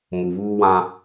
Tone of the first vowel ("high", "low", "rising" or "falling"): low